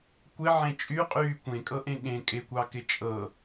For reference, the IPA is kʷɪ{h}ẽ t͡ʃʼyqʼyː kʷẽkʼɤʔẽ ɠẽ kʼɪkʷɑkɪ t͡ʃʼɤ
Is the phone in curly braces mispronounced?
yes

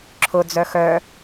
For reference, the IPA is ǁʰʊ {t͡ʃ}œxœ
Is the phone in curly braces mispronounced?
yes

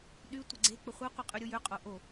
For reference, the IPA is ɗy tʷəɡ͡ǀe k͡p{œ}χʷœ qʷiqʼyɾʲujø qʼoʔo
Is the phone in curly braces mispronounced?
yes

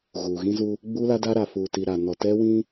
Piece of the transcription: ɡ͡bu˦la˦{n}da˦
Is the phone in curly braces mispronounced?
yes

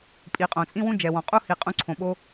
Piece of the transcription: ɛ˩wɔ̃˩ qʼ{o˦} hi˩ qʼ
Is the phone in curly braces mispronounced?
yes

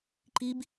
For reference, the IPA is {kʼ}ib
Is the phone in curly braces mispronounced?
yes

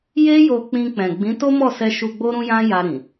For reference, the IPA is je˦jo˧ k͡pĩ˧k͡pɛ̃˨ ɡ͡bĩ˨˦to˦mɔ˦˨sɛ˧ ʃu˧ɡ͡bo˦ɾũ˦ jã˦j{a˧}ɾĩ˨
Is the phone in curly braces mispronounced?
no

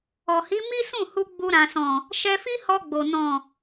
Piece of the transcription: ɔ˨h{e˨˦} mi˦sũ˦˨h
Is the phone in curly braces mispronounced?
yes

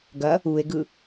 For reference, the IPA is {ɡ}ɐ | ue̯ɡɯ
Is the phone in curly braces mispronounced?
no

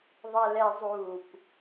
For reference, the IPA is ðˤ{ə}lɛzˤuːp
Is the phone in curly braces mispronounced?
yes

